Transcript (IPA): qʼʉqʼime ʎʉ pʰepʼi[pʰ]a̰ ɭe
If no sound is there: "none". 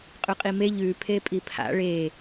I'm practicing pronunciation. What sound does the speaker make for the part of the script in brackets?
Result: pʰ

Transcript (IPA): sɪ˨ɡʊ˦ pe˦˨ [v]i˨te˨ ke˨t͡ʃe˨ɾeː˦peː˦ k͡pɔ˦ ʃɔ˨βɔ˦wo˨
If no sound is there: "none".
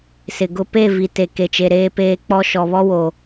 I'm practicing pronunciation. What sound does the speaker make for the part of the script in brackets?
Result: v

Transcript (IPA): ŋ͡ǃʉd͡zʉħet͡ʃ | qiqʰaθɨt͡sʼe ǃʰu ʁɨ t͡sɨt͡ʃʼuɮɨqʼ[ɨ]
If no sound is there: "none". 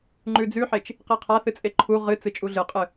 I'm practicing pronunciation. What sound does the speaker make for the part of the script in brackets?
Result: ɨ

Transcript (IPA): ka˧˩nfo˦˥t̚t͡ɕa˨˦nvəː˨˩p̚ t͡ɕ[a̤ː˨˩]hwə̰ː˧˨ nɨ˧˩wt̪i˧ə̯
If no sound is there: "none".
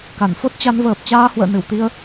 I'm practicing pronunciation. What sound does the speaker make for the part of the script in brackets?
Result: aː˧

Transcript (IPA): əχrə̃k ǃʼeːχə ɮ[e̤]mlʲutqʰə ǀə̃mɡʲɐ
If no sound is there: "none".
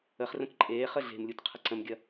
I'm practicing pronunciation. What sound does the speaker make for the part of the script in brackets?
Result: e̤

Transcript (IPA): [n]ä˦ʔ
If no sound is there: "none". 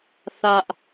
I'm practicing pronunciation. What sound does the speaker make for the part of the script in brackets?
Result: θ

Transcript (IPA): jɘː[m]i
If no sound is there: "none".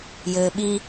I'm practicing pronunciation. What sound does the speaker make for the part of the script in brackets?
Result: ɓ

